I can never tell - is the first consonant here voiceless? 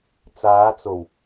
yes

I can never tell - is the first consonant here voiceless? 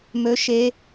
no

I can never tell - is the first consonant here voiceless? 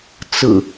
yes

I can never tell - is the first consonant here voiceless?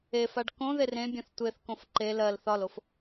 yes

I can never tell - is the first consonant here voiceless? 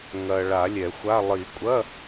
no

